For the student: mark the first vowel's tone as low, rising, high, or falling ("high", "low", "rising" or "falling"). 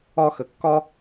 high